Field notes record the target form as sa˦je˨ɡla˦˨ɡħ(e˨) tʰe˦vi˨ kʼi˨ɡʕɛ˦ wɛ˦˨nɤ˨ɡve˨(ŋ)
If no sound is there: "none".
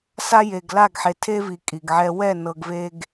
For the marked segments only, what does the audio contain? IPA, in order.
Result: e˨, ɡ

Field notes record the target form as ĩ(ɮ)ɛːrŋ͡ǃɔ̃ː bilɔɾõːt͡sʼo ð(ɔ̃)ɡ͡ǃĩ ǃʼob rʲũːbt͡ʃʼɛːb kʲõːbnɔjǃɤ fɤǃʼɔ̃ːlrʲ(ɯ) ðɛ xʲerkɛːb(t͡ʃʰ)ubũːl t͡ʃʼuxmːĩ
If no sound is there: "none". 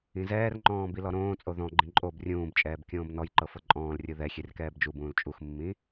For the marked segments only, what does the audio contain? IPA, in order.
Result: z, ɔ̃, ɯ, d͡ʒ

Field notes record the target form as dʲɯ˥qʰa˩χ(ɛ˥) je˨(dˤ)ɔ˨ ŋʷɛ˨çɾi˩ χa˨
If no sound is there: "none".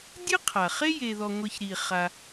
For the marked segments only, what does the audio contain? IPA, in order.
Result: e˥, ð

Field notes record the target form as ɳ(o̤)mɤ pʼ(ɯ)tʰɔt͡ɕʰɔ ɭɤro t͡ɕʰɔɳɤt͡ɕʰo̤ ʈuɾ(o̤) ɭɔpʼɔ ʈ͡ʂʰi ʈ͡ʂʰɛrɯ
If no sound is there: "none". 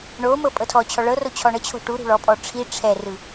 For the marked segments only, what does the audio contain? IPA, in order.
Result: o, ɤ, ṳ

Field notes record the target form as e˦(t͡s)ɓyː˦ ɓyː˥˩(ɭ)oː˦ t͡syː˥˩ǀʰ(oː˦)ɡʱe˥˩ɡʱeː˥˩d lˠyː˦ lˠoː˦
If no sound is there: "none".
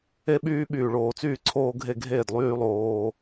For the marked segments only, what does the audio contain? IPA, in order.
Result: none, ɭ, oː˦

